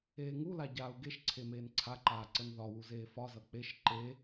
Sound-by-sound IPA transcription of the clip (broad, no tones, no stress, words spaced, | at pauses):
eːŋula ɟaːu̯ɡeʃ ǀʰemeːnǀʰaǃaː ǀənðɒwu zeːfɒzʌ k͡peʃ ǃe